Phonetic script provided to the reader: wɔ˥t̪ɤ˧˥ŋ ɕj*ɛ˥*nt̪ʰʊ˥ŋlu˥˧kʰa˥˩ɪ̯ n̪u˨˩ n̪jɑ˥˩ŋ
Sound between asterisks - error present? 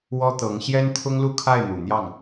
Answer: no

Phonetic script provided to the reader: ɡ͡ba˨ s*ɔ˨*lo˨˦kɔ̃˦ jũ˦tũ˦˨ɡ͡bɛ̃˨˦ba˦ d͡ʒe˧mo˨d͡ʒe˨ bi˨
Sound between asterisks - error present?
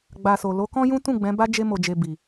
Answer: yes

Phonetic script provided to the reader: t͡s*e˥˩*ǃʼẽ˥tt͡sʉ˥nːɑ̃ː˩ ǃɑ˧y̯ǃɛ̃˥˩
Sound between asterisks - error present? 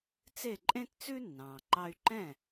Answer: no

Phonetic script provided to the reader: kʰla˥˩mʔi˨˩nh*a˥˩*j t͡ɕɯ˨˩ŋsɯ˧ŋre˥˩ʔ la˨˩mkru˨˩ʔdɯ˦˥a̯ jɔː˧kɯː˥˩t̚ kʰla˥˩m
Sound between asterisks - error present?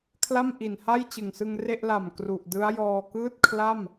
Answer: no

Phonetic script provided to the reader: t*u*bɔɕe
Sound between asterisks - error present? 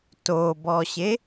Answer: yes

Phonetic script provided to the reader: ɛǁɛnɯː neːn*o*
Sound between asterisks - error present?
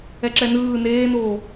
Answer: yes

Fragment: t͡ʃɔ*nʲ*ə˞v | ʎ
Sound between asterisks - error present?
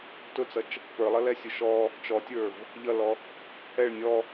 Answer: yes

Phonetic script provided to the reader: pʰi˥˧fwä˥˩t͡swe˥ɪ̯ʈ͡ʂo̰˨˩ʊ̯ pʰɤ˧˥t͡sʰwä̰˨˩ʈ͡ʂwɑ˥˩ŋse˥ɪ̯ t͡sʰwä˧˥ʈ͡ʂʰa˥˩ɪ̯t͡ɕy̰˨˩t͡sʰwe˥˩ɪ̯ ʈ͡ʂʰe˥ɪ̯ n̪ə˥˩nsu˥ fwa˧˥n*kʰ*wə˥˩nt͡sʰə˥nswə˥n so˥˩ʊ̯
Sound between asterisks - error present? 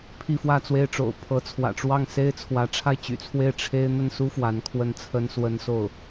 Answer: no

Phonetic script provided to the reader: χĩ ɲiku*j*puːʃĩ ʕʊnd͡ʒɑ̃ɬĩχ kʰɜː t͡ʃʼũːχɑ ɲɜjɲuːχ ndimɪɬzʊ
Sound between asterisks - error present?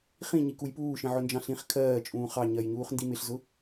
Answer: no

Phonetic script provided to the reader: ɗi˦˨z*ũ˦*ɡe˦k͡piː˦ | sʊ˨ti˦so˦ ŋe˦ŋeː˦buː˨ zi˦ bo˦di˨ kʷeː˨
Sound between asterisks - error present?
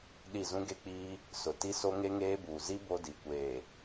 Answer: no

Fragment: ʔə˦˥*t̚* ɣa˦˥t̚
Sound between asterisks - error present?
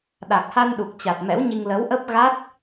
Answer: yes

